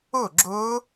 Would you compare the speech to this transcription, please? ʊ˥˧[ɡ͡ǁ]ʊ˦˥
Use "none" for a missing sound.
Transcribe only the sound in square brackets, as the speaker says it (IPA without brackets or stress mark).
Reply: ɡ͡ǁ